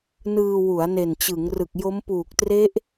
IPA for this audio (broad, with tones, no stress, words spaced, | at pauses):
nɯː˧wu˩˦a̯ ne˨˩nt͡ɕɯ˩˦ŋrɯ˨˩k̚jo˦˥m puː˨˩k̚tre˦˥ʔ